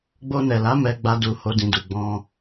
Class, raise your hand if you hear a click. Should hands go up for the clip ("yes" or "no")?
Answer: no